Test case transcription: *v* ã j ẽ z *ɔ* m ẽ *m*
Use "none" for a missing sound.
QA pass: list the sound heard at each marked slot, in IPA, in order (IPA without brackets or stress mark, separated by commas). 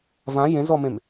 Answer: v, ɔ, m